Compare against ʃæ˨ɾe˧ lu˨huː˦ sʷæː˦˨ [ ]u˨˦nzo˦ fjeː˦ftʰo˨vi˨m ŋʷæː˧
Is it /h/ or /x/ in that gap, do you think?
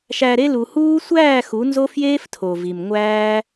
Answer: x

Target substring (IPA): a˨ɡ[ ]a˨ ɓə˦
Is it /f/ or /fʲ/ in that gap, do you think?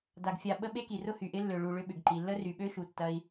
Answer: fʲ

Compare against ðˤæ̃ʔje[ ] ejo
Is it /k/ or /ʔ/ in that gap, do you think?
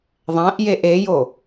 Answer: ʔ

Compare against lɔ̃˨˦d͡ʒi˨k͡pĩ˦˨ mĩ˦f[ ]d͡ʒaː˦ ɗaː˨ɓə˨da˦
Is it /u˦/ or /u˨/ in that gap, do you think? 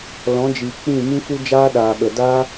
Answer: u˦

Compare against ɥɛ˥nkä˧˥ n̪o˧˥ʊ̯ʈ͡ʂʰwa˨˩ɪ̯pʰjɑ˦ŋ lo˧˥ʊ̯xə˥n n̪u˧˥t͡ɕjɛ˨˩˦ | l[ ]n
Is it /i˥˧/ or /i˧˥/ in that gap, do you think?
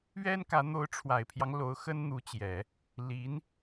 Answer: i˧˥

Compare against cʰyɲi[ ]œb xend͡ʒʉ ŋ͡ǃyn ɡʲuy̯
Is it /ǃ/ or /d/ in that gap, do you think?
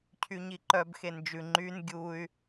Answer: ǃ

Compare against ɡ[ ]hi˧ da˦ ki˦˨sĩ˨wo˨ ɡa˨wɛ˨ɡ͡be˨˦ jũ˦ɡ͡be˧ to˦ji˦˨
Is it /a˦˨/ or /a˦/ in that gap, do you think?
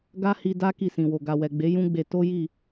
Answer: a˦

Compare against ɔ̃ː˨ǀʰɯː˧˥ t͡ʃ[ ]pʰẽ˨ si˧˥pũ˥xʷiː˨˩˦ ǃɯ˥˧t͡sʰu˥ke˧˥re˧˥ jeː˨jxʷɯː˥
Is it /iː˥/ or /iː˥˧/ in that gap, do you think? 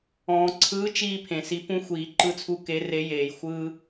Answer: iː˥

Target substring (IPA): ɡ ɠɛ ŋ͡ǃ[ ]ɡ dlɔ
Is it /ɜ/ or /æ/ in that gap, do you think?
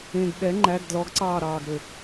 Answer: æ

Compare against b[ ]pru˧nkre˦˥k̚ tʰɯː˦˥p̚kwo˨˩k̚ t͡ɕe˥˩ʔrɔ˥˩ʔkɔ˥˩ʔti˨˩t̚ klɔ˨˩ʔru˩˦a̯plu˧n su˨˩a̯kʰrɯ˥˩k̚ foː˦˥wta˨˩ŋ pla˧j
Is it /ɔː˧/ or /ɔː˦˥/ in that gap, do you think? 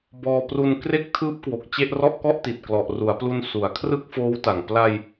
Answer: ɔː˧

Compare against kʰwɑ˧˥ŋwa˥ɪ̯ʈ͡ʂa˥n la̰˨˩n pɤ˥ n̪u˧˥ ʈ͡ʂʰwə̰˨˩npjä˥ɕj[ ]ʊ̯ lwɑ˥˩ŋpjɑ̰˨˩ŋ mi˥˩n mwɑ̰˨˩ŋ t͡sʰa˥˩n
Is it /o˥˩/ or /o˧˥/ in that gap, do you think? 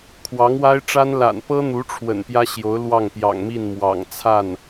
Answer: o˧˥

